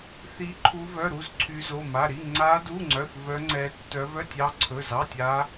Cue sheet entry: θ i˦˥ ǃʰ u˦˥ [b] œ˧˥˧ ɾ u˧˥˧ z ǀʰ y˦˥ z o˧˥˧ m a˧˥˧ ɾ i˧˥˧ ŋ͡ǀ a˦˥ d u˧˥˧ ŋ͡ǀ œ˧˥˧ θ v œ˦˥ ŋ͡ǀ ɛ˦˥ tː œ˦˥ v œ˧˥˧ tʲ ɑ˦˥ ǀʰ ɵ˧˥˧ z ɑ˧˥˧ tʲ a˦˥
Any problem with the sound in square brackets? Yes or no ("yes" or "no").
yes